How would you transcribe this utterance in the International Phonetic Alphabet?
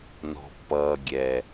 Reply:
nɔ̤˨pːʌː˨ ɡʲɛ˨

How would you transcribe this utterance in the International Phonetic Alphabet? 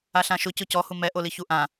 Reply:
aɬãʃʊ cʊcɔ humɛ ʔoliçuʔã

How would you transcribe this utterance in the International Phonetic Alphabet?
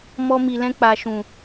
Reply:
mɔ˧mi˨lɛ̃˧k͡pa˨ ʃũ˨

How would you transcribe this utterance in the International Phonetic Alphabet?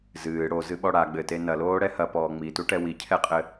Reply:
zɨː ɽozɨɓɔ ɽa ɡ͡bɘte nɐloːɽɛ hɐpɔː ŋ͡mituʈɛ wicʰɛqʼɘ

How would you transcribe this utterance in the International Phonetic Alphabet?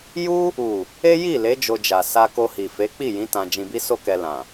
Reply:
ju˦ | u˨ | e˦ji˦˨le˨˦ d͡ʒo˧d͡ʒa˨ sa˧ko˧hi˨ fe˨˦k͡pi˦˨jĩ˨˦ tã˧d͡ʒĩ˧bi˦so˦ kɛ˧lã˨

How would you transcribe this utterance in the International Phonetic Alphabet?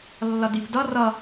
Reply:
lːʌdjṳdʌ rʌ

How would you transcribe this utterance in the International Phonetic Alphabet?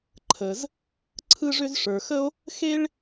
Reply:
ǃʰə˩z | ǀʰɯ˥ʐʏ˥z ʂə˞˩xə˥o̯ | xe˥ɭ

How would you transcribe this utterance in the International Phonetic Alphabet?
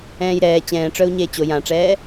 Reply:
ɛ̃ːjɾɛː t͡ɕɛ̃ːʈ͡ʂœu̯ ɲeːt͡ɕo jãʈ͡ʂɛː

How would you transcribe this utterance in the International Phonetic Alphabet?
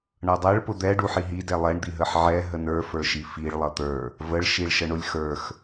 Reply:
ɳʌdˤɛɭ pʊd̪ɛ ɖuħiɦi dɛlˠɛɳ d̪iɦəħʕɛ ɦənə˞ fə˞ʃifiɭ lˠʌt̪ə˞ | vəɭ ʃiɭʃəɳʊlʲ xə˞x

